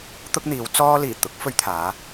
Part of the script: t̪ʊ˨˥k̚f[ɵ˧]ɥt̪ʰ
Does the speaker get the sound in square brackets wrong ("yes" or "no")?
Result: no